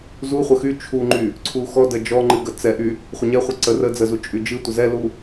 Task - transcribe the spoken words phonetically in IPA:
zuχʷə xy t͡ʃʰuŋ͡ǃy | ǀʰuxɔdə d͡ʒɔ ŋ͡ǃɨɡət͡sɛʔy | χʷəɲɛχʷɨ ǀə rə d͡zəzu t͡ʃʼyd͡ʒɨtʷə zɛlu

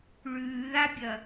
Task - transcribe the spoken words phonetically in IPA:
ɭʉːðabʲɐ

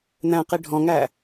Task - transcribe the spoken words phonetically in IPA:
n̪æ̃qi ɖʱɔ̃ŋæ

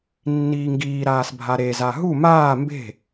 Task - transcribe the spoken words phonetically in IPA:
nːiːŋɡiːɾaːs bʱaɾeza ɦu maː mbe̤

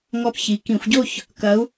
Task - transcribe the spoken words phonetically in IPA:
ŋɔ˥˧p çi˩˧ kĩ˧˩˧xʷɟo˥˧ç | kɐ˨˥u̯

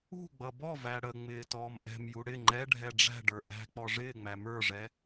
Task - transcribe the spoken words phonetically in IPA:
ṳ ɡ͡bʌbɔvæ ɽəŋ͡mɪː tɔːmʔɛ̤mju ɽɪ ŋ͡ǃɛɖʱɛ ɖ͡ʐæ̤ɖə˞ ʔæ̤ k͡pɔʐɪːŋ͡mæ mə˞ʐɛ

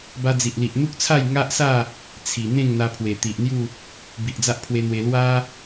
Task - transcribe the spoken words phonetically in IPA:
ba˧d͡zi˨ʔli˨ʔ n̪u˦k̚t͡sʰa˥˧j ŋa˦ʔsa˥˧ | t͡sʰi˨˩ n̪ẽ˥˧ŋn̪a˧pʰwe˨˩ t̪i˨ʔn̪ju˥˧ | bi˨ʔd͡za˦ʔpʰwe˧n̪we˧ lwa˦

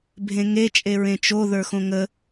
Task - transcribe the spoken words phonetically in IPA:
bʱẽŋe t͡ʃʼeɹẽt͡ʃo ðə˞xõŋə

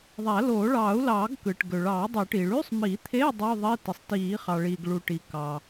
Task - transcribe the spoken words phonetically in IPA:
ðˤæ˨˩˦loː˨˩˦ɭɑː˨˩˦u̯lɑː˨˩˦ɡ kɯ˩ʈ ɡø˩ɭɑː˨˩˦dˤø˨˩˦ʈiː˩ ɭy˧˥˧sˤ mi˨˩˦t̪ʰe˧˥˧ dˤu˧˥˧ðˤi˧˥˧ ti˩sˤ tiː˨˩˦χɑ˩ ɭiː˩ɡɭu˩ ʈi˩ kɑ˩

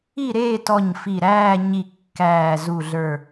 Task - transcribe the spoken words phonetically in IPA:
i˥˨ɾeː˥˨tɔ˧˩ɲ fi˧˩ɾæː˥˨ɲi˧˩ kːæː˧˩zu˧˩ɮə˞˧˩

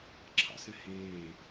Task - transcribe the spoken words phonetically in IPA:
ǁʰɑ̰sɛ̃hẽː

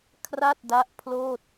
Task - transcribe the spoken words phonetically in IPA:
kʰra˥˩t̚da˦˥ʔpʰloː˥˩t̚

